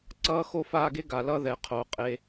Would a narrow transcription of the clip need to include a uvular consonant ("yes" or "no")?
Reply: yes